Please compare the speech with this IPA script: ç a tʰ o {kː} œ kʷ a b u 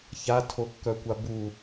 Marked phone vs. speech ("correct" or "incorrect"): correct